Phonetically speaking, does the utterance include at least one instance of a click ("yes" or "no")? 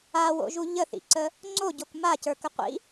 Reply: yes